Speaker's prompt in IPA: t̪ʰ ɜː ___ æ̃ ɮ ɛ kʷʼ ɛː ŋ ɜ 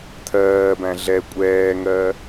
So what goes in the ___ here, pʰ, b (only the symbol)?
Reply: b